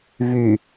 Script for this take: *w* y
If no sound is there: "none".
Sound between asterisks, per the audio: v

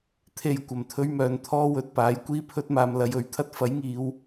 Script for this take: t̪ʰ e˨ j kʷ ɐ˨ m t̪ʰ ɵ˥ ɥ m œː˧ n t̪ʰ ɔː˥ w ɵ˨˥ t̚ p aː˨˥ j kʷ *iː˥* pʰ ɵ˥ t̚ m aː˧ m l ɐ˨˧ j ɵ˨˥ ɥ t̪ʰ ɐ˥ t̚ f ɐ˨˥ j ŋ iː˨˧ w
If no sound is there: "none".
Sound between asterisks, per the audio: iː˥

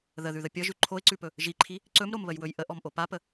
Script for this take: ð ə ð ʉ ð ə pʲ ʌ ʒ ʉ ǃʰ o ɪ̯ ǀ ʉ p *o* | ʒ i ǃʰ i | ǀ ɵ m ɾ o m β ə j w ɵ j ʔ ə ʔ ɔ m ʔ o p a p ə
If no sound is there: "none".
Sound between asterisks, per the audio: ɵ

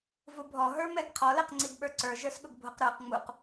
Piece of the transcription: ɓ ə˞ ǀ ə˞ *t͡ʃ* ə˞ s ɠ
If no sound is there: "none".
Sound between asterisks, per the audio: ʒ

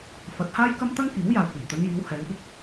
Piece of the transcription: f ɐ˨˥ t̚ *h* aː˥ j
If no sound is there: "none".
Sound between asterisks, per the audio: h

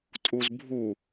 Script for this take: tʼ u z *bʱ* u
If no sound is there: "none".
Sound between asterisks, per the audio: bʱ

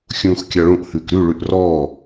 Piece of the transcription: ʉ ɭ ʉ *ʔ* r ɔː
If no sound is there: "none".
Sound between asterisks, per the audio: ʔ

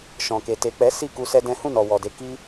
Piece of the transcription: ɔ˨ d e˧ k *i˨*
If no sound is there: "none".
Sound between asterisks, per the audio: i˦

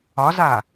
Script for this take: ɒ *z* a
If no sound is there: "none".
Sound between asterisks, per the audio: z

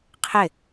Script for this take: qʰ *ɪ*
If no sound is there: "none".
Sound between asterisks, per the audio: ɪ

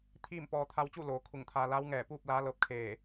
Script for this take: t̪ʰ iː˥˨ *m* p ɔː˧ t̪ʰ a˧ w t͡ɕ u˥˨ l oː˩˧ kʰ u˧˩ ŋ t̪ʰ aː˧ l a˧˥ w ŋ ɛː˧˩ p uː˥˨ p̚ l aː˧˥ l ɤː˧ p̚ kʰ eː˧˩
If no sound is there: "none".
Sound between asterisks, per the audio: m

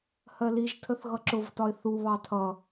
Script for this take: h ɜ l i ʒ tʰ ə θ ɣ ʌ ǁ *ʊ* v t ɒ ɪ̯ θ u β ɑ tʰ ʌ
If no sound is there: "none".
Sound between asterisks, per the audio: ʊ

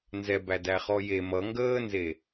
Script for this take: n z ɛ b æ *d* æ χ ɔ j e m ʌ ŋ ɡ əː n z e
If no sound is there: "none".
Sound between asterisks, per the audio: d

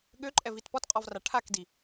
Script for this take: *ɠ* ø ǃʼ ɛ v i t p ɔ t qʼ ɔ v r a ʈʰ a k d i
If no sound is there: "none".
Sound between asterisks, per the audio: ɠ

